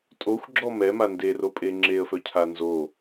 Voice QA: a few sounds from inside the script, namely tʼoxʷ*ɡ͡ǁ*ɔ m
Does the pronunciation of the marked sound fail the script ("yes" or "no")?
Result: no